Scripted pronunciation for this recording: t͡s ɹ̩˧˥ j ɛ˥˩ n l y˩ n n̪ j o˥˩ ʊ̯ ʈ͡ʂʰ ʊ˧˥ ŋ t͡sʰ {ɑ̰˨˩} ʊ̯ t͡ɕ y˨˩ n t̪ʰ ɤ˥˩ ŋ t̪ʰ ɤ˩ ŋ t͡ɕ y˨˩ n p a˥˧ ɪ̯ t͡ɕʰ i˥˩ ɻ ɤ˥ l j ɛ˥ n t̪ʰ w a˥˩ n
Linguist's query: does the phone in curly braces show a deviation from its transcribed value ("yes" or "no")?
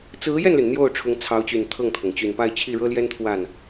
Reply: yes